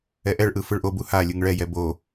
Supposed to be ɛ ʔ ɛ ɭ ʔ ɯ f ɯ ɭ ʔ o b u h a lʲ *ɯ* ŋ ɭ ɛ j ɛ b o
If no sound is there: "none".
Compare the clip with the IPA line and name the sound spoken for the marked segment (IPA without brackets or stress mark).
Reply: ɯ